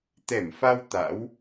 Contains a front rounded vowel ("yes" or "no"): no